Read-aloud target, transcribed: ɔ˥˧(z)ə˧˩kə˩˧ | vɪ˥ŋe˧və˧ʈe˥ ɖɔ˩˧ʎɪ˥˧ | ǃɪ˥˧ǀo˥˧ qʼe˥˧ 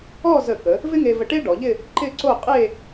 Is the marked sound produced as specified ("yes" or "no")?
yes